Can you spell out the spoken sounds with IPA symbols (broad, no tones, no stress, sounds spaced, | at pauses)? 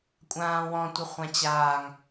kʷʼ ãː w ɔ̃ tʷ ə χʷ ã t͡ɕ aː ŋ